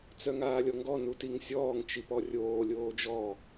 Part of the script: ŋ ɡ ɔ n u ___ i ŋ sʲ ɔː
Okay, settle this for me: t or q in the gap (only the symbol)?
t